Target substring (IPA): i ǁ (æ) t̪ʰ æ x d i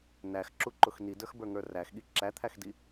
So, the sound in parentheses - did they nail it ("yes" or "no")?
yes